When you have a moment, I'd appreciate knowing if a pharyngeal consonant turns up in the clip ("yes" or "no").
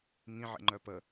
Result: yes